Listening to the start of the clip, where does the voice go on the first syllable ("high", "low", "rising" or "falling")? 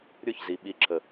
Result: falling